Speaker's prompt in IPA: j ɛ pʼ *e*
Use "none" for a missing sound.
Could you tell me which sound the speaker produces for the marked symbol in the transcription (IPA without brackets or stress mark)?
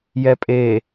e